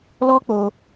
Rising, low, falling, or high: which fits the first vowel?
high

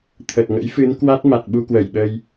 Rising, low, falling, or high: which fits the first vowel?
low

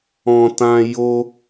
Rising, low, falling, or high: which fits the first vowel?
low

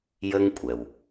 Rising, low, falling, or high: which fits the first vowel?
high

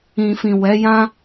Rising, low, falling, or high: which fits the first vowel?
low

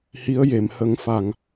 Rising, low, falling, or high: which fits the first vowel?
rising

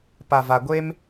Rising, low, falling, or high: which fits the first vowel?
low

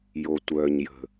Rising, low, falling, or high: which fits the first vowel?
low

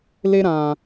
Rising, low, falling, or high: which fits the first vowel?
high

